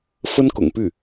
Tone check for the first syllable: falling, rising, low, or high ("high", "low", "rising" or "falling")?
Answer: high